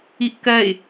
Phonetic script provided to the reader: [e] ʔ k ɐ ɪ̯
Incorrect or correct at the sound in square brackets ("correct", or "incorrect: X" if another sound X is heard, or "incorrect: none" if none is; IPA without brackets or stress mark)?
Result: incorrect: i